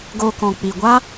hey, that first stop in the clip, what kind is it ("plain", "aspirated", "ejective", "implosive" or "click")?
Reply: plain